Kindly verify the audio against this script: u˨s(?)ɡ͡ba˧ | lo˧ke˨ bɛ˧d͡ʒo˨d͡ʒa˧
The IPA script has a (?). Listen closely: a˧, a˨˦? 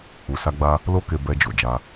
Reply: a˧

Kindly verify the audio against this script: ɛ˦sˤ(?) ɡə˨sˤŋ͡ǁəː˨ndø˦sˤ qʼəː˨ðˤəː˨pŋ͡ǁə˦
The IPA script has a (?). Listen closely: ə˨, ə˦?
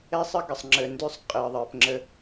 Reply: ə˦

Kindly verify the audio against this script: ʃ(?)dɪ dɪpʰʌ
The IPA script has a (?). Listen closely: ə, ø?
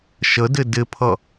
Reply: ə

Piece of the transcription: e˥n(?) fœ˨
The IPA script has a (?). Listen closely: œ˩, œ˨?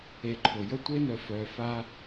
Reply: œ˨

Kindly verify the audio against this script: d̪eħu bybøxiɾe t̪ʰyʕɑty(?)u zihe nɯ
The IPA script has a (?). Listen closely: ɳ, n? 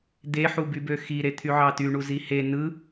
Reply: ɳ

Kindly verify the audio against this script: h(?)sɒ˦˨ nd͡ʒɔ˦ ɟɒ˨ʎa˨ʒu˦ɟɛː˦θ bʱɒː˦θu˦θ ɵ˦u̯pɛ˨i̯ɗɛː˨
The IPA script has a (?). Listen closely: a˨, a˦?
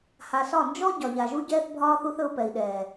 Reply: a˨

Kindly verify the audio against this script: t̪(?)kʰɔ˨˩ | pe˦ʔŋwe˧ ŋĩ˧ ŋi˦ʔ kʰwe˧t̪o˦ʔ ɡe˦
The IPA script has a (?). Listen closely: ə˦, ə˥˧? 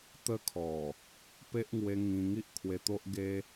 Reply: ə˦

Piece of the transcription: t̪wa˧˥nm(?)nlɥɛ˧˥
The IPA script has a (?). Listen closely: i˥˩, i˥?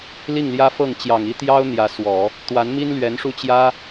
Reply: i˥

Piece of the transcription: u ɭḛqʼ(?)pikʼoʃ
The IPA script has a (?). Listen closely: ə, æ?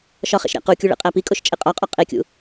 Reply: æ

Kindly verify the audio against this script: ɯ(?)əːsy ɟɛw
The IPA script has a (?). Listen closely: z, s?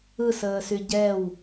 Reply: s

